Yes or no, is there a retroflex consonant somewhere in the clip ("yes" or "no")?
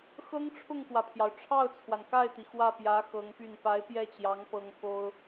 yes